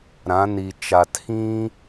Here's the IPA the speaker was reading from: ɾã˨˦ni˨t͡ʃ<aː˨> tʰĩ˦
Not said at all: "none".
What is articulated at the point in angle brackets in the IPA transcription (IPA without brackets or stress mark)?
a˨